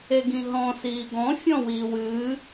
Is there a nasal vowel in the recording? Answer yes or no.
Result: yes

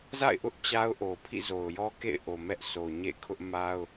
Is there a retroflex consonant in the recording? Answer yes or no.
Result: no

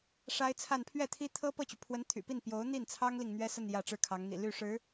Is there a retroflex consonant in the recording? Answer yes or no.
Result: yes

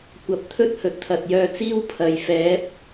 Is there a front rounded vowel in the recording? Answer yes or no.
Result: yes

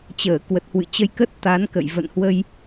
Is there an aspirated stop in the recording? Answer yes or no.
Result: no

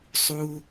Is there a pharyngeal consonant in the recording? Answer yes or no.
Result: no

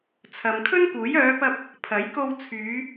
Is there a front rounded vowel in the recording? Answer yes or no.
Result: yes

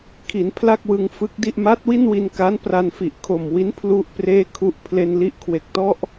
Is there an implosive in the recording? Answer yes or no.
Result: no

